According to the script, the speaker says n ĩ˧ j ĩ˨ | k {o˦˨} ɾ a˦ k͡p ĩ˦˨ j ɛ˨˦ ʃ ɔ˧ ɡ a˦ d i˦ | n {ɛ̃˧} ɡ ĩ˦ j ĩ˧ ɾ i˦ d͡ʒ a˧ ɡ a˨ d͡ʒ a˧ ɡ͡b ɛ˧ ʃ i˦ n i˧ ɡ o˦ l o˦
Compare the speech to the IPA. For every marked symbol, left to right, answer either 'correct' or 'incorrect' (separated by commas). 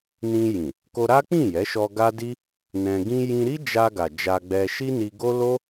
incorrect, correct